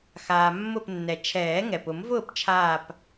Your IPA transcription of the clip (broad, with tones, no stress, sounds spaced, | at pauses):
x aː˩ mː ʊ˧˩ p nː ɛ˩ t͡ʃʰ ɛː˨˩˦ ŋ ɛ˩ p ʊ˨˩˦ m v ʊː˥˨ p t͡ʃʰ aː˧˩ p